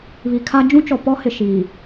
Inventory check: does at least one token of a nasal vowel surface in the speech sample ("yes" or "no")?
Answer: yes